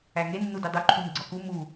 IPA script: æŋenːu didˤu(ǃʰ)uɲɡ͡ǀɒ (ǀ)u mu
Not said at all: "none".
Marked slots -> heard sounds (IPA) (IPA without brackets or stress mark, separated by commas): ǃʰ, k